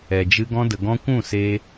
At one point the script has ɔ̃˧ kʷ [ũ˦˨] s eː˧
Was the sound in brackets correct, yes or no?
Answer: yes